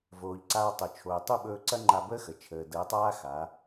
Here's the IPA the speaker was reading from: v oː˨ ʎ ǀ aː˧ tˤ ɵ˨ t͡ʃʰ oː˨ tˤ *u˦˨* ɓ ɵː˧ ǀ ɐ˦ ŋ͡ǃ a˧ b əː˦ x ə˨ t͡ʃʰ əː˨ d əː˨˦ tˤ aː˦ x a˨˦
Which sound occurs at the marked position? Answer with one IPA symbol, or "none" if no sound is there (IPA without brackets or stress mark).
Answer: u˦˨